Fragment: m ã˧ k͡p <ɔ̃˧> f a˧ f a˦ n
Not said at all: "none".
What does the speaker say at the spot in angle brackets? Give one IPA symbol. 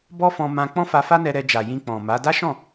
ɔ̃˦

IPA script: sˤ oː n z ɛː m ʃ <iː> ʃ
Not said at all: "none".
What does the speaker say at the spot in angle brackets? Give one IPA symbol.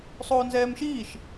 iː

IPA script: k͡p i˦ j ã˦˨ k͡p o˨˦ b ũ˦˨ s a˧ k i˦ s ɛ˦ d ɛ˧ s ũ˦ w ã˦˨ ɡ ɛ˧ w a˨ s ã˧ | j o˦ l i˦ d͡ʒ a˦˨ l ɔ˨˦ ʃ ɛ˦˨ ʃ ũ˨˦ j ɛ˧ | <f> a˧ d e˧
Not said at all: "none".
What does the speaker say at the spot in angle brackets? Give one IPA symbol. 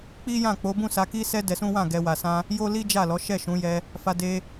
f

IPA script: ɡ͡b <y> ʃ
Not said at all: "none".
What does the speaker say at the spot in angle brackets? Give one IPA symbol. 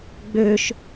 ø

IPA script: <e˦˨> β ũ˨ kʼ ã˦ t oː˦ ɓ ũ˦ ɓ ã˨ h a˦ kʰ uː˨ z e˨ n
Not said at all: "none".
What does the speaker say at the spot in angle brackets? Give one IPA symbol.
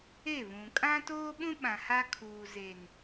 e˦˨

